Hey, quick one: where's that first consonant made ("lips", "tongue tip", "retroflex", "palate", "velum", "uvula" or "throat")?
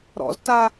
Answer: tongue tip